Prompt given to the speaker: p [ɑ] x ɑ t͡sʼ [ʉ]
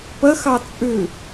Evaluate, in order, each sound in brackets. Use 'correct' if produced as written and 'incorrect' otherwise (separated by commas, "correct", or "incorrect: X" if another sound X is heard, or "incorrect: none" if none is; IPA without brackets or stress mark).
incorrect: ə, correct